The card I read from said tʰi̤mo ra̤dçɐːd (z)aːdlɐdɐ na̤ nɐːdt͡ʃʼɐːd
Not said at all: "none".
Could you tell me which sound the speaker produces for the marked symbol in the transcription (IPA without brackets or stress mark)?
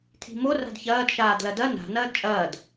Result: ʃ